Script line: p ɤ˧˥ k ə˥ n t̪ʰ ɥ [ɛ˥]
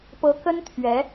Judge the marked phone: incorrect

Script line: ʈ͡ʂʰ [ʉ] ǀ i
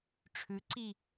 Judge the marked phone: correct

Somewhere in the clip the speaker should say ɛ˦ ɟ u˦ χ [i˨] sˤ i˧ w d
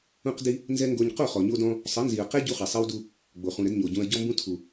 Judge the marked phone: correct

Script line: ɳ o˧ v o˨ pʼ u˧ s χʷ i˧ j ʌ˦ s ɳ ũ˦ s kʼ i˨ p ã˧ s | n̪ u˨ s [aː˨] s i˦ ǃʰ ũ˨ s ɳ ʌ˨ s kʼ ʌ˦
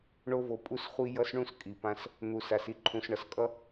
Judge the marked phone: incorrect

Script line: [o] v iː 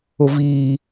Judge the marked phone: correct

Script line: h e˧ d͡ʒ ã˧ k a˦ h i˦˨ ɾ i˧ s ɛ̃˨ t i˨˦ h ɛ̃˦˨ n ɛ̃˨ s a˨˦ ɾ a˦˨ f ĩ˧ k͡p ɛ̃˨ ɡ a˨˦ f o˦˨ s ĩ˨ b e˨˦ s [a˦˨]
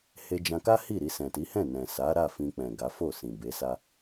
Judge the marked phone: incorrect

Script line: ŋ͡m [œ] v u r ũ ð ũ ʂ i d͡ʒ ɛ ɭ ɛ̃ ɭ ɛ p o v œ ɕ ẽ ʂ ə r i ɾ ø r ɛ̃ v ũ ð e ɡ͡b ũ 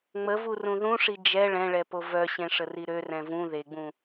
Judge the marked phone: incorrect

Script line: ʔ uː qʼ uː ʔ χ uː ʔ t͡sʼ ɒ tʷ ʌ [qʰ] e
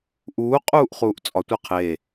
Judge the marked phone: correct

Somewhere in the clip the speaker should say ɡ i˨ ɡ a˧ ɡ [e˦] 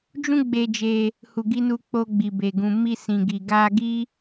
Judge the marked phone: incorrect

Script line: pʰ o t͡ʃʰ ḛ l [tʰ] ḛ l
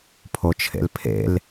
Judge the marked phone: incorrect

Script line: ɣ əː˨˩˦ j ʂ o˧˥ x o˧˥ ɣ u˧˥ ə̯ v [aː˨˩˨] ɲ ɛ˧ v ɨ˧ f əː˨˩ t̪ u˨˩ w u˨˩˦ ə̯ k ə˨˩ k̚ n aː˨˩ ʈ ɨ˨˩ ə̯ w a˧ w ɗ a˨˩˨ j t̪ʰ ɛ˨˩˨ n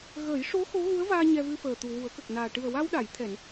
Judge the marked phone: incorrect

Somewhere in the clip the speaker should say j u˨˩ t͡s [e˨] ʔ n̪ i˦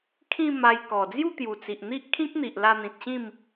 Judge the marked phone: incorrect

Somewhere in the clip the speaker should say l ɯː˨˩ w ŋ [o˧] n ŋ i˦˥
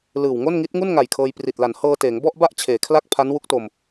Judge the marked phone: incorrect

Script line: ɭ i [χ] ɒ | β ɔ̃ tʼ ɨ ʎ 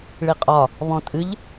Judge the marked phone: incorrect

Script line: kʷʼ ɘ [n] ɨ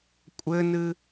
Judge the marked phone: correct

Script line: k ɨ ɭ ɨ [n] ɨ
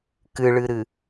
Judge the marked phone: incorrect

